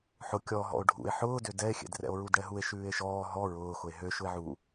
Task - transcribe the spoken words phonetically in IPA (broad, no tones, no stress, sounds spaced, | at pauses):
ħ ʊ kʲ ɔ ɦ ɔ̰ o̯ ɖʱ ṵ e̯ ħ ʊː d ø d ɛ e̯ xʲ ɛ̰ d r ɛ̰ o̯ ɹ u d ɽ ɛ ɦ u e̯ ʃ ʉː e̯ ʃ ɔː ɦ ɔ ɹ ʊː x ʊ e̯ ɦ ø ʃ ʊ e̯ ʕ u